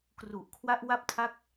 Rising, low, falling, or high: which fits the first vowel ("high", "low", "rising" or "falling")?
low